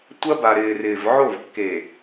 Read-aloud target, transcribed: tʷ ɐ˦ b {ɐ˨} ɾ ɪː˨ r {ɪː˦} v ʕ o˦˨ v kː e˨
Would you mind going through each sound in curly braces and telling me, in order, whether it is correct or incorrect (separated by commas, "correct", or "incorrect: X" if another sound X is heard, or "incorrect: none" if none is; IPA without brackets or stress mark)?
incorrect: a˨, incorrect: ɪː˨